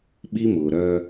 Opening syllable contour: high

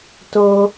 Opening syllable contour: high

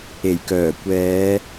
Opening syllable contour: low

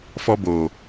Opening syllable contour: high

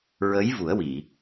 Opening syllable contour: rising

